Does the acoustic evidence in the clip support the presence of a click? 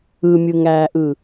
no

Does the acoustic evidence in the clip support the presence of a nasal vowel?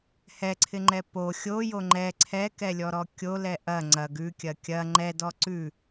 no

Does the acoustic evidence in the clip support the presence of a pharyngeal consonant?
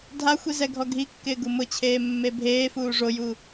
no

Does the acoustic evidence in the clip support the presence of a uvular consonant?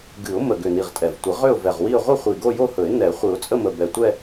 yes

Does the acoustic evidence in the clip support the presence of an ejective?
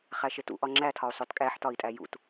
yes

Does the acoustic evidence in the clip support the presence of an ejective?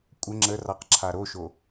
yes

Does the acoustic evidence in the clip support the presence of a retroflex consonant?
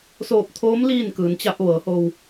no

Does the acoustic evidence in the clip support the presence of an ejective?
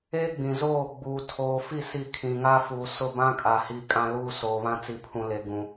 yes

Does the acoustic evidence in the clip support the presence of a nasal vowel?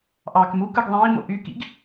yes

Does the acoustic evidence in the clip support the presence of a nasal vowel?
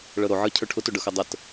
no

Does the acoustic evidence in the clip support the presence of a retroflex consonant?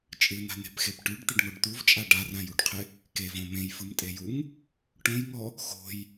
yes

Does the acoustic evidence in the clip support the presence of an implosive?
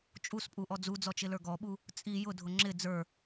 yes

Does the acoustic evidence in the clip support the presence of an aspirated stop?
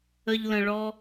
no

